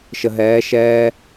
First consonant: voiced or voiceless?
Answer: voiceless